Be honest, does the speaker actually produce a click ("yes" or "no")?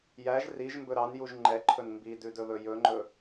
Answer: yes